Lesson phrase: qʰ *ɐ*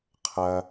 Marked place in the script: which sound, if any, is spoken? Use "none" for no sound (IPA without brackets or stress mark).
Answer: ɐ